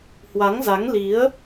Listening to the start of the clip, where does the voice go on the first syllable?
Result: rising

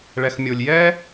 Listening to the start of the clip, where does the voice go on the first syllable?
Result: low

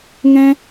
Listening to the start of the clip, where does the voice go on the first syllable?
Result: high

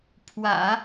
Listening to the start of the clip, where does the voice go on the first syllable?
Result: low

